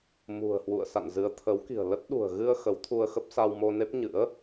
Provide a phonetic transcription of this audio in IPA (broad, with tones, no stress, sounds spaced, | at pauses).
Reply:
m ṳ˨˩ ə̯ h w ṵ˧˨ ə̯ s a̰˧˨ n z ɨ˨˦ ə̯ t̪ʰ ə˨˦ w k i̤˨˩ ə̯ l ə˦˥ t̚ ɗ ṳ˨˩ ə̯ ɣ ɨ˧ ə̯ x ə˨˦ w t̪ʰ u˧ ə̯ x ə˦˥ p̚ s a˧ w m o˧ n e˦˥ p̚ ɲ ɨ̰˧˥ ə̯